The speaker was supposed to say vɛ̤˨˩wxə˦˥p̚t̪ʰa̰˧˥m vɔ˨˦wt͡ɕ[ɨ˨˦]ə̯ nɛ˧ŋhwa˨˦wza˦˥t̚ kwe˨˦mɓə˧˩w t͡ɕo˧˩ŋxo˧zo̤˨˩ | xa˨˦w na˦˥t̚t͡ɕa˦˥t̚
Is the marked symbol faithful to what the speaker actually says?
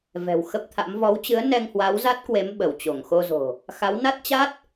yes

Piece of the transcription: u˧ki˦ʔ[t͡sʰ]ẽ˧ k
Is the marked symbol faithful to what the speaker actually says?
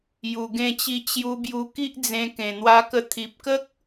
no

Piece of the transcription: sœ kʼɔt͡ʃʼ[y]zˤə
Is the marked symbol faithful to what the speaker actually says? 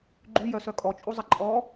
no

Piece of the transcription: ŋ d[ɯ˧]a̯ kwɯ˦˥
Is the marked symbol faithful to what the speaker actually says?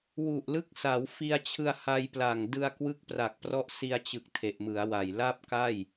yes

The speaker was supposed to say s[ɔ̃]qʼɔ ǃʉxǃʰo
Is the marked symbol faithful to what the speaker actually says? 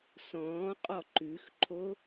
no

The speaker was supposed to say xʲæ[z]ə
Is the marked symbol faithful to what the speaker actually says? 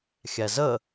yes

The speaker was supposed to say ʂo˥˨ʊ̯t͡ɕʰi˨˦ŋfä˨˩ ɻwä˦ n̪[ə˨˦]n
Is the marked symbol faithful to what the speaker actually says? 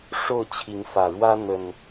no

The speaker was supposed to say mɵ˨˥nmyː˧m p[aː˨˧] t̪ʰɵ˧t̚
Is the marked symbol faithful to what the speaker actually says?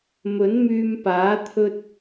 no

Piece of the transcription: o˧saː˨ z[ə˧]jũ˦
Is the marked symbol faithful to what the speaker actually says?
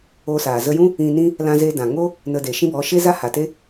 yes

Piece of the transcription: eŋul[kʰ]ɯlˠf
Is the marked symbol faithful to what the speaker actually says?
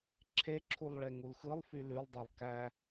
no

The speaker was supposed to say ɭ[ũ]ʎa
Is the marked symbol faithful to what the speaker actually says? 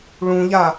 yes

